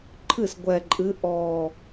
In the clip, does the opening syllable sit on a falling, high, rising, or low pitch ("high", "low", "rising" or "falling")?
falling